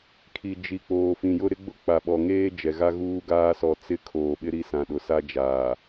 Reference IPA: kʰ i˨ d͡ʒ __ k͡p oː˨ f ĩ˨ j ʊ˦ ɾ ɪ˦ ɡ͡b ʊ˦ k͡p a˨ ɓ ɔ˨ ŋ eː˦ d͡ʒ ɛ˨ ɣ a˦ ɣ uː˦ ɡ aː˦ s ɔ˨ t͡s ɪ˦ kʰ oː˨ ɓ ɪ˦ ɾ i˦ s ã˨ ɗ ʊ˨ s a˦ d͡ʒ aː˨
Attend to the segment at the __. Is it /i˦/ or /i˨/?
i˨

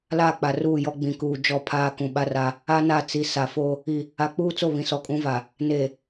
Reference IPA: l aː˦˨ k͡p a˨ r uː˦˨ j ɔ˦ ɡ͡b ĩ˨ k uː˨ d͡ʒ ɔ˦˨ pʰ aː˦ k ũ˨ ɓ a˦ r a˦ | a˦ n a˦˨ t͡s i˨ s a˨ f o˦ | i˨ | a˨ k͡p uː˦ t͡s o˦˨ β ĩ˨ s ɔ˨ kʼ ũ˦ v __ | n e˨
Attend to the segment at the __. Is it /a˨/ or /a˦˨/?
a˨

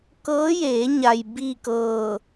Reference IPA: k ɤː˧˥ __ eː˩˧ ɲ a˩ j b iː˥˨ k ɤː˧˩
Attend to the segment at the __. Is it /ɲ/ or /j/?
j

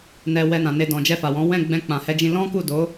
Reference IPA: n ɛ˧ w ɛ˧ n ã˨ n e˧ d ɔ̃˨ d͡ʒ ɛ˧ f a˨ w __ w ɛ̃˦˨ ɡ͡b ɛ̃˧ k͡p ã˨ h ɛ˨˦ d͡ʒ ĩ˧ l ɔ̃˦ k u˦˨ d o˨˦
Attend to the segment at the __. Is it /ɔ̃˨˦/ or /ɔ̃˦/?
ɔ̃˨˦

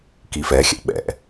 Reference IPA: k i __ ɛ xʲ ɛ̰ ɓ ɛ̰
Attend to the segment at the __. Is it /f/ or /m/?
f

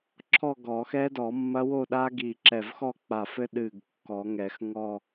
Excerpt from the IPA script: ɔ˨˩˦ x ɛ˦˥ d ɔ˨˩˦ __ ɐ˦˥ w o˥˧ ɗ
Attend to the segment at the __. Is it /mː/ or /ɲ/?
mː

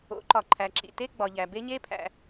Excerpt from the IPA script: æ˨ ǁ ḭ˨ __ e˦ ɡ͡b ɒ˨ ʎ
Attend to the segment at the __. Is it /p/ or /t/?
t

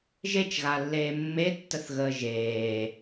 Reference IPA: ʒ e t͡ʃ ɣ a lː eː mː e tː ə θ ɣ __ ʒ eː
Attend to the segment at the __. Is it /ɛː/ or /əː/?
əː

